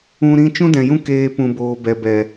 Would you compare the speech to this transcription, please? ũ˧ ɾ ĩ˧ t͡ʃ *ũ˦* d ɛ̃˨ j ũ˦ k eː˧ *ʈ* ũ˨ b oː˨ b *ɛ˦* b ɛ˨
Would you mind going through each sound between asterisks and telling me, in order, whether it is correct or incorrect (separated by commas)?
correct, incorrect, incorrect